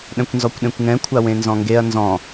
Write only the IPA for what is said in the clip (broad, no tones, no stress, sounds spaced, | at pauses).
ɗ ɛ̃ kʷ n z ɔ kʷ ɗ ẽ kʷ ŋ ɛ̃ kʷʰ a w ẽ n z ɔ̃ ŋ ɡ e ɐ̯ n z ɔ̃